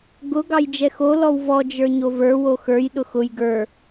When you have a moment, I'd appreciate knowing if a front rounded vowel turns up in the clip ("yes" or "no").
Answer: no